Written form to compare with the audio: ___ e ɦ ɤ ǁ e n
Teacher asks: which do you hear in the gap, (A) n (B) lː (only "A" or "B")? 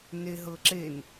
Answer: A